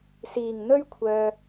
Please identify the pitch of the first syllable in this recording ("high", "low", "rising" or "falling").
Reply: low